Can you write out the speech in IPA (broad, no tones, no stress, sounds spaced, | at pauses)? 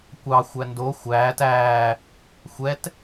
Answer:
kʷ ɑ xʷ æ n d o xʷ æː t æː | xʷ ɛ t